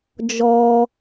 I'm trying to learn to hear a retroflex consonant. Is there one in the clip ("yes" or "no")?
no